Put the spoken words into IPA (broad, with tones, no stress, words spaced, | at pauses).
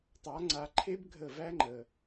tˤa˨˦ŋ͡ǀa˧ǃʰe˦b ɡʱə˦˨ væ˦ŋ͡ǃə˨